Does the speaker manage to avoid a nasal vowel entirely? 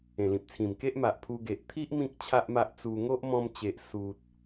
no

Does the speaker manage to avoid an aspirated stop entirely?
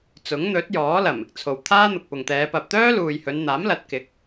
no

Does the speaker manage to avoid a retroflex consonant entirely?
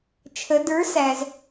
yes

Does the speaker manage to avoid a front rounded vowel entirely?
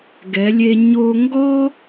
yes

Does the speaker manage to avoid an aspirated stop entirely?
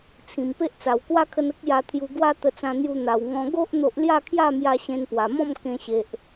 no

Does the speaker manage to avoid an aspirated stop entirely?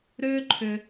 no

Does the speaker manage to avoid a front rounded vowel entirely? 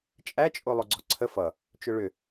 no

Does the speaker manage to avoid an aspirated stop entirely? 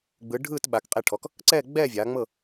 no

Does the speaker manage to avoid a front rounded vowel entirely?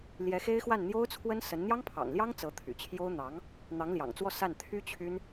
no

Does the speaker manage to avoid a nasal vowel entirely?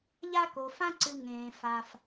no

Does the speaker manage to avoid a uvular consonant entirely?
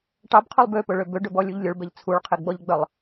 no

